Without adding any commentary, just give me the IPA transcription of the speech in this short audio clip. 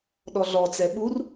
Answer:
ɗɔɮɔ t͡sɛɓur

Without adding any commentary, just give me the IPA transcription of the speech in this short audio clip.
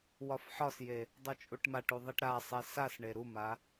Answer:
wɒfħɒsje | dˤot͡ʃʼuʈmaʈu ðˤiʈɾasˤɛ sasɳe ɾuma

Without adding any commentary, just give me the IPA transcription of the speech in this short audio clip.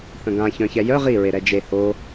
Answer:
θə̃ɡã çœ̃çɛjœ ʁi ɹeɾɛd͡ʒe ho

